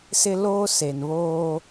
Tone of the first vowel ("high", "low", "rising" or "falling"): high